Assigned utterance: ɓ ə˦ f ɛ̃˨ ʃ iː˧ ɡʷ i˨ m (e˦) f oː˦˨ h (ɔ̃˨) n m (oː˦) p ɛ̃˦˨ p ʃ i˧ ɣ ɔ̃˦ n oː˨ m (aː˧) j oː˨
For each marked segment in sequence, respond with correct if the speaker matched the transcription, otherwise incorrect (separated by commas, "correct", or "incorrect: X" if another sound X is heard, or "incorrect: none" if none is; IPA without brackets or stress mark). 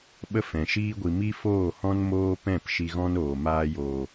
incorrect: i˦, incorrect: ɔ̃˦, correct, correct